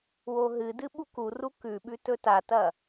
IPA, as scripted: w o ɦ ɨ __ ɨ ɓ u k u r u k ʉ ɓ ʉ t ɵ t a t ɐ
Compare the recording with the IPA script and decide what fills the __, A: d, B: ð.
A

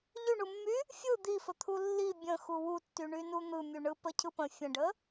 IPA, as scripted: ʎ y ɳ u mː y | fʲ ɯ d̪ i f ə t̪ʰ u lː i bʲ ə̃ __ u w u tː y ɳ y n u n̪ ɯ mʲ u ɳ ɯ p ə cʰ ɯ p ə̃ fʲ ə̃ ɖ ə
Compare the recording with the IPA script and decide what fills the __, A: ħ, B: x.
B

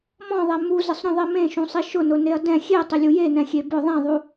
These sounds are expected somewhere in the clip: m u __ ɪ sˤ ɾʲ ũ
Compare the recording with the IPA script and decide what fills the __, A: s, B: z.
B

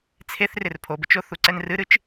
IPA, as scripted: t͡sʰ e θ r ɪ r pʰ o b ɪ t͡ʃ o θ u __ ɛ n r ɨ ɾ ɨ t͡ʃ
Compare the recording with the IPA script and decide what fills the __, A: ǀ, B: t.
A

